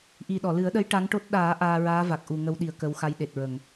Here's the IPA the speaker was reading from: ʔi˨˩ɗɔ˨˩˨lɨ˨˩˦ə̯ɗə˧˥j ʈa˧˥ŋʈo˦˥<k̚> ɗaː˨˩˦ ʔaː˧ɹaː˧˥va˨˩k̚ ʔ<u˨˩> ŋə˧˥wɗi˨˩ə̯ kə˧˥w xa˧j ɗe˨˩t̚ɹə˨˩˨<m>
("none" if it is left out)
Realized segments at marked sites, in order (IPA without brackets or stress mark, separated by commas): t̚, u˨˩, ŋ